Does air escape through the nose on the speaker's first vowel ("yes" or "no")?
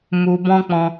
no